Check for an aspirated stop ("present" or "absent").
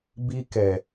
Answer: absent